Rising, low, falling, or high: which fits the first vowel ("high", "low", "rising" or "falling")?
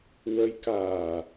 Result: rising